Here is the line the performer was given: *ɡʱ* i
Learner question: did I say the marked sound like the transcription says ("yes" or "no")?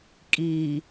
no